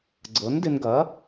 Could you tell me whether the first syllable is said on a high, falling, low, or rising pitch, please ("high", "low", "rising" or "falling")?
rising